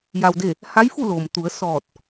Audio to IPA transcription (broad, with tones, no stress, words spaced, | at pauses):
ja˧wde˥˨ | ha˧˥jfu˥˨ lo˩mt̪u˩˧ə̯sɔː˧˩t̚